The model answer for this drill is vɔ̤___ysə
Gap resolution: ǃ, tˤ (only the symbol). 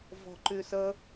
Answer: ǃ